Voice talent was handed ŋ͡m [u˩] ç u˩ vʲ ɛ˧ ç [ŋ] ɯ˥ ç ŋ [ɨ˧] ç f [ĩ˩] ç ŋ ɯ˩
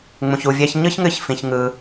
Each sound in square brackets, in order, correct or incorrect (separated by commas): incorrect, incorrect, correct, correct